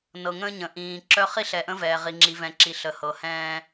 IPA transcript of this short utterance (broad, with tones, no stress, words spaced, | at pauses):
nɤ˨ŋə̃ː˦ɲə̃˨ ʔĩː˨ǁœ˦ χi˦ɬɛ˨ʔə̃˦vɛː˨ ʁi˨ŋ͡ǁi˨vɛ̃˨ǁi˨ ɬə˨hɤ˨hɛ̃ː˦